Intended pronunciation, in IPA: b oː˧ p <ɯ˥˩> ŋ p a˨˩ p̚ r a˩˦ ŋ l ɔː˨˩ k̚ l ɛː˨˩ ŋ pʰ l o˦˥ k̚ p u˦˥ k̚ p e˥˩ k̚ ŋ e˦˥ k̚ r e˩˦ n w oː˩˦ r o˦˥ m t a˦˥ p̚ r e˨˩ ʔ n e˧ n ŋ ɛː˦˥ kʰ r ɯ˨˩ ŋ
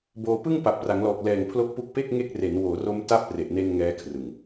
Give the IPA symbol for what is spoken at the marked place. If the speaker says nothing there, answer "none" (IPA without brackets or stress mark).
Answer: ɯ˥˩